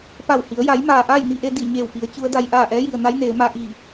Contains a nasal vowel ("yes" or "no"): no